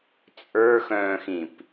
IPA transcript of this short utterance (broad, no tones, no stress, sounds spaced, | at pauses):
t͡sʼ ə˞ x œ̃ː x ĩ p